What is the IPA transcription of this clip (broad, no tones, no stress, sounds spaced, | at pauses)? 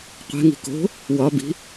qʷ e̤ ŋ i̤ k o̤ | w ɒ b i̤